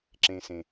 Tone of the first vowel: low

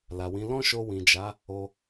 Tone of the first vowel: low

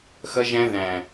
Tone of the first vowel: high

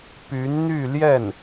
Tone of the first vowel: rising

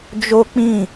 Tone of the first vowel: high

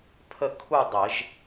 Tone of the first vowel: falling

